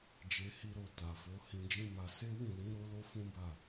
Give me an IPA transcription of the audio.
d͡ʒ e˧ h i˧ ɾ o˧ t a˨ f o˨˦ h ĩ˧ d͡ʒ ĩ˦ m a˧ s e˦ w ĩ˦˨ l ĩ˨˦ ɾ o˦ l o˦ f ũ˦ b a˦˨

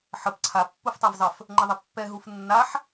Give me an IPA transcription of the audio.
ħ ə p ǀʰ a pː u f tˤ a v zˤ ə f | ŋ͡ǃ ə ðˤ ə pː ɛ ɦ u f nː a ħ

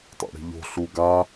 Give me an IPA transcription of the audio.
tˤ o̰ ɽ i̤ ʎ o̤ ɬ u ɡ a

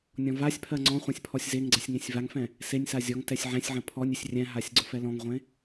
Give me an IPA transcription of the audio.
nʲ ɔ̃ v a sʲ pʰ ɜ ŋ͡ǀ ɔ̃ χʷ ɛ̃ sʲ pʰ ɔ sʲ z e ŋ ɡ͡ǀ ɛ sʲ ŋ ẽ sʲ v a ŋ f ɛ̃ | s e nʲ s a zʲ ɔ ŋ t ɛ sʲ ʕ ɛ̃ sʲ ʕ ə̃ pʰ ɔ nʲ ɪ sʲ rʲ ɛ̃ ɦ a sʲ ɡ͡ǀ ʊ f ɛ l ɔ̃ ŋ ʁʷ ẽ

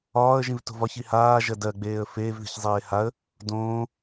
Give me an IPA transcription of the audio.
ɒː ə̯ ʒ ĩ v t o̤ v ɒ ç i h aː ʒ ɜ d ɜ ɡ͡b eː ə̯ f eː v ð i̤ ç zˤ eː h a ə̯ | d õː

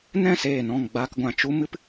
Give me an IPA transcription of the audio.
n ɛ̃˦˨ s eː˦˨ n ɔ̃˦˨ ŋ ɡ͡b aː˧ k ɡʷ ã˨ t͡ʃ u˦ m ɨ˦ p

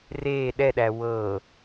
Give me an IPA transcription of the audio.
r eː ɗ ɛ ɗ æ w ɤ

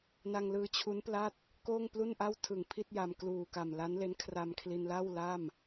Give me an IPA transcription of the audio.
n a˧ ŋ l ɯː˧ t͡ɕʰ u˦˥ n p l a˥˩ t̚ | k oː˥˩ ŋ p l u˥˩ n ʔ a˥˩ w tʰ ɯ˨˩ ŋ pʰ i˥˩ t̚ j a˧ m k l uː˨˩ k a˨˩ m l a˦˥ n l e˦˥ n kʰ r a˧ m kʰ l i˧ n l a˥˩ w l a˥˩ m

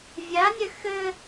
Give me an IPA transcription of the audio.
vʲ a nʲ ɘ x ɘ

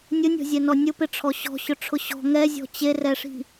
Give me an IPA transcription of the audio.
nʲ ʊ nʲ ɔ̤ zʲ ɛ n ɔ nʲ ʊ p ɪ ʈ͡ʂʰ ɔ ɕ ɔ̤ ɕ ʊ ʈ͡ʂʰ ʊ ɕ ɔ̤ ŋ ɛ zʲ ɔ̤ t͡ɕ e r ɛ ʂ i̤

